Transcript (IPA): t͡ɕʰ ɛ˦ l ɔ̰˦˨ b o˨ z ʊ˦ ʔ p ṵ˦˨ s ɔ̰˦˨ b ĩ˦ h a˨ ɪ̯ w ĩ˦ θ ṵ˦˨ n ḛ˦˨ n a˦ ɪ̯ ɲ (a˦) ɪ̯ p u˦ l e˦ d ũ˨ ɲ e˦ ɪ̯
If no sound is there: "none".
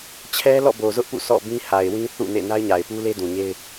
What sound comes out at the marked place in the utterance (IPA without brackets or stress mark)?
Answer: a˨